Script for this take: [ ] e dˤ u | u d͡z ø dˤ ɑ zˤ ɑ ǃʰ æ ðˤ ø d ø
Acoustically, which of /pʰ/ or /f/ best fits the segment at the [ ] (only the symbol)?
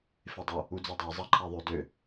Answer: f